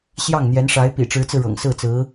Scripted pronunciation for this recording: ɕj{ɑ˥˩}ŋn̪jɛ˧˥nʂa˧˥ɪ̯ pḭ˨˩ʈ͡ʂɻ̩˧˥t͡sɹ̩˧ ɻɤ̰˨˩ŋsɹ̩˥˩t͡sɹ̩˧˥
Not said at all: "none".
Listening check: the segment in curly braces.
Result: ɑ˥˩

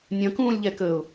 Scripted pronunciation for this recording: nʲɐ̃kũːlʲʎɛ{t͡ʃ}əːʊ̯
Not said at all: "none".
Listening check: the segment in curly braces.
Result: k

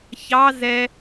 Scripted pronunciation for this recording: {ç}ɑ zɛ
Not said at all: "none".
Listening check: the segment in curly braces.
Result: ç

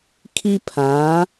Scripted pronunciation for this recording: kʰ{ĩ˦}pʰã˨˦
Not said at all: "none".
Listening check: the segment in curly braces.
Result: i˦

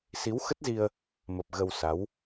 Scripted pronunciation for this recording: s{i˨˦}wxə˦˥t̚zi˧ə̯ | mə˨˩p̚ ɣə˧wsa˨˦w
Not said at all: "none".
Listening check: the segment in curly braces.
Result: i˨˦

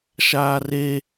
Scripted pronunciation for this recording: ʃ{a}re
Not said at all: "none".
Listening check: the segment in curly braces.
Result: aː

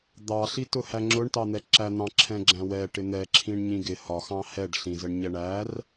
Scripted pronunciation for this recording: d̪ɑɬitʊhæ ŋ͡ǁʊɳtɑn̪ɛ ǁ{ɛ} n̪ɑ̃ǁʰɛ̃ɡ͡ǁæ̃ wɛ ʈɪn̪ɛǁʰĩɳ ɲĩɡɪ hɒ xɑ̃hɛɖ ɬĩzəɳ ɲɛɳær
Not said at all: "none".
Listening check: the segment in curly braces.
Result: æ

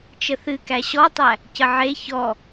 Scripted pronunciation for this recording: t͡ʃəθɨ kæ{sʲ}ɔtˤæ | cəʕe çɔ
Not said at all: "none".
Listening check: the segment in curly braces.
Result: ɕ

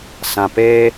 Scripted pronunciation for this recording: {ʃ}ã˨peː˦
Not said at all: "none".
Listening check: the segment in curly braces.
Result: s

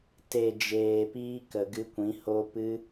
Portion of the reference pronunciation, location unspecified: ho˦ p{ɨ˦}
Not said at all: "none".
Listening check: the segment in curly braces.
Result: ɨ˦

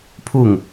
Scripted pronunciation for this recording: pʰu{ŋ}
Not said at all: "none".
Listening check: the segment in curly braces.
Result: ŋ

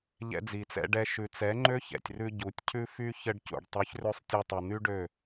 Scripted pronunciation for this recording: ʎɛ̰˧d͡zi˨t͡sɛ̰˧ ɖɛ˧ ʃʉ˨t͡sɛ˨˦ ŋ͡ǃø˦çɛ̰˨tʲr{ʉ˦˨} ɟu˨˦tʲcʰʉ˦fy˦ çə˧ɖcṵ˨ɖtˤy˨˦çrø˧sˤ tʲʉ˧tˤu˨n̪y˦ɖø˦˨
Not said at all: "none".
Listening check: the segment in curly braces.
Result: ʉ˧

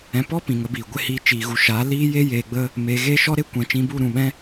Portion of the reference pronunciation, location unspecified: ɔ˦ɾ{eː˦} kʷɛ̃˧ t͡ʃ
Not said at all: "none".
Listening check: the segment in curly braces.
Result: e˦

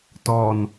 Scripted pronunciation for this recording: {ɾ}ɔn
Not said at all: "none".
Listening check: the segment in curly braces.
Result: t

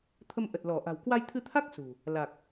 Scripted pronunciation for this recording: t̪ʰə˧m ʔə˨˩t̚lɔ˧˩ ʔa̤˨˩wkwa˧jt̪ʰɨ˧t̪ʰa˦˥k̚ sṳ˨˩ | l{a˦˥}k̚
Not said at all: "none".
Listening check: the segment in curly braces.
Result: a˨˩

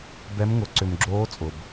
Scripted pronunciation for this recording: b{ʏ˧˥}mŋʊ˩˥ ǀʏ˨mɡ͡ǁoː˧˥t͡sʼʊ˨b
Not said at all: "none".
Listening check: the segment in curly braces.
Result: ɛ˧˥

